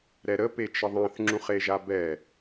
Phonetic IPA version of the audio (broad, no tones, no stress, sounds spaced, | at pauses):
ɾ ɛ ɾ ə p e t͡ʃ ə ðˤ ã θ ŋ͡ǁ ũ χ e ʒ a b ɛ